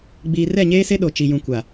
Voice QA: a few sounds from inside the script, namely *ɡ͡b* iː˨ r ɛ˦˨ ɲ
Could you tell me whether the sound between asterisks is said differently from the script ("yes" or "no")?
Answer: no